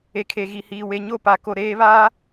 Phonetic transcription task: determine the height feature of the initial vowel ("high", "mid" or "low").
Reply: mid